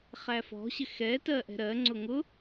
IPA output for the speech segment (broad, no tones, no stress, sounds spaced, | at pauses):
χ æ f ɔ̤ ɕ ɪ x ɛ t ɜ ʔ ɛ̤ ɾ ɜ ŋ͡ǀ ʊ ŋ ʊ